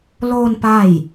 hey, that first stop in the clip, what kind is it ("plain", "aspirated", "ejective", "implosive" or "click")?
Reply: plain